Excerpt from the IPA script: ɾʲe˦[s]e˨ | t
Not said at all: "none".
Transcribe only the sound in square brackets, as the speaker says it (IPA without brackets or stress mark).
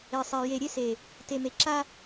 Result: s